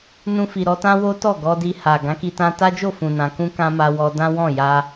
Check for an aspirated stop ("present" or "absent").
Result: absent